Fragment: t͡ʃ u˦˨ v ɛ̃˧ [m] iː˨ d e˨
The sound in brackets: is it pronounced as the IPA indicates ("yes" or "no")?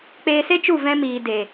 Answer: yes